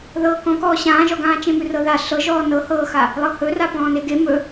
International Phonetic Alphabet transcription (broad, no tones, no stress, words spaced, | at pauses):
ðɤːkɔ̃kɔː ɕãːʒɔɡãː t͡ʃẽmʉrɤða ɬɤʒɔː nɤhɤːxa | lˠɤhɵ rapɔ̃ːneɡe mɵ